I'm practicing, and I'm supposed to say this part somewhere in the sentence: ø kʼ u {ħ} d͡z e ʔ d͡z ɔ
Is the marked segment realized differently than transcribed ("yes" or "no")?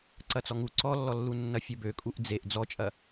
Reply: yes